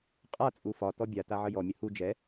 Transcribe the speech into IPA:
qʼ a t͡sʼ u f ɒ t ɔ bʲ a t a ʕ ə j ɔ mʲ ə h u d͡ʒ ɛ

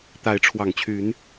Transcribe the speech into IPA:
t̪ a˨˦ ɪ̯ ʈ͡ʂʰ w ɑ˨˩ ŋ t͡ɕʰ y˨˦ n

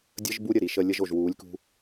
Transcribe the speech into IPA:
dʲ ə˦ ʒ b u˦ ɾʲ ə˨ ɾ i˨ ʃ ə˧ lʲ ə˧ ʒ o˨ ʒ w uː˨˦ lʲ k ṳ˧

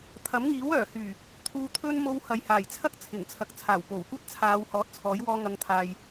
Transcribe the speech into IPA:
t̪ʰ ɐ˨˥ m ŋ iː˨˥ w œː˨˩ h yː˨˩ | t̪ʰ uː˧ t̪ʰ ɵ˥ n m o˧ w h ɐ˨ j h aː˨˩ j t͡sʰ ɐ˥ k̚ t͡sʰ ɪ˨˩ ŋ t͡sʰ ɐ˨ k̚ t͡sʰ aː˨˩ w p o˨˩ w kʷ ɐ˥ t̚ t͡sʰ aː˨˧ w h ɔː˨˥ t̚ t͡sʰ ɔː˨˥ j w ɔː˧ ŋ ɐ˨˧ ŋ t̪ʰ aː˨ j

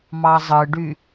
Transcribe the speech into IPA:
m ɑ zˤ ɯ ɖ y

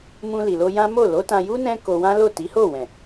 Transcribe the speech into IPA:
m ũ˧ l i˨ l o˧ j ã˦ m o˦˨ l o˨˦ t ã˧ j u˦ n ɛ̃˦ k o˧ w ã˦ l o˦˨ t i˨˦ h o˦˨ w ɛ̃˨

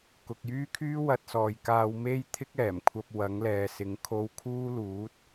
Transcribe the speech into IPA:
k ʊ˨ k̚ j yː˥ kʰ yː˥ w ɐ˧ t̚ s ɔː˨ j k aː˧ w m e˥ j t̪ʰ ɪ˥ k̚ ɛː˨˩ m kʷʰ ɐ˧ p̚ w ɐ˨˥ ŋ l ɛː˨˧ s ɪ˨˥ ŋ kʰ o˧ w kʰ uː˥ l uː˨˥ t̚

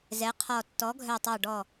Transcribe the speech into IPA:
z ɛ˩˧ qʰ ɔ˨˩ tː ɔ˩˧ ɡʱ œ˨˩ tˤ ɑ˨˩ ɖ ɔ˨˩

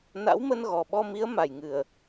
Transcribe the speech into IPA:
n a̰˧˥ w m ə˧ n ɣ ɔ˨˩ ɓ ɔ˧ m i˨˦ ə̯ m a˨˩ j ŋ ɨ˨˩ ə̯

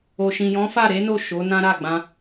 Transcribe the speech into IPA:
o˨ ʃ ĩ˨ j ɔ̃˨˦ f a˦˨ ɾ e˨˦ n o˦˨ ʃ o˨˦ n ã˦ ɾ a˦˨ ɡ͡b ã˧

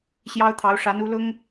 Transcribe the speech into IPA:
ɕ j ɑ˥ ʊ̯ t̪ʰ ɑ˧˥ ʊ̯ ʂ a˧˥ n u˧˥ l ʊ˥ ŋ

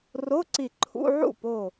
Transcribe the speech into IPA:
r o˧˥˧ ǀ i˧˩ ǃʰ ṵ˧˥˧ ʕ ṵ˥˩ p o˧˩

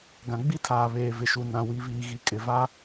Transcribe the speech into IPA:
ɡ ã˨ ɡ͡b i˦ tʰ aː˨ β eː˨ v ɪ˨ ʃ u˨ n ã˨ w i˨ v iː˨ ɣ i˨ kʼ ɪ˨ v a˦

